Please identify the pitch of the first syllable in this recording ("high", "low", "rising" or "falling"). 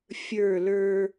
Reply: falling